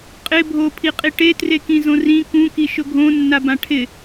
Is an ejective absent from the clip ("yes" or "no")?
no